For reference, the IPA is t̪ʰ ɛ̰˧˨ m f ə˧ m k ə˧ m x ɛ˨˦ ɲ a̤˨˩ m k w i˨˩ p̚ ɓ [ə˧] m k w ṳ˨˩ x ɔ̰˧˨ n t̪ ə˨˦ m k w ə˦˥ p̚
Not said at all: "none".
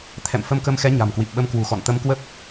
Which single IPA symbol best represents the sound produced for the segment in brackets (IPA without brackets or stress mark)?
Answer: ə˧